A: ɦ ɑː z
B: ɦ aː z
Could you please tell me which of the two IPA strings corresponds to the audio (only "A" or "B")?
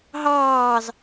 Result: A